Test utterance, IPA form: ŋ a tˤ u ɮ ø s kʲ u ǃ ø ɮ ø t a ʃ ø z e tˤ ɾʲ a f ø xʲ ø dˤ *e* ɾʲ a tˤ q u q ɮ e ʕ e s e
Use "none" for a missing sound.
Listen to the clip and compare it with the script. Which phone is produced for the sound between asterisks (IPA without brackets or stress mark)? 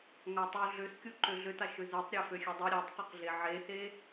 e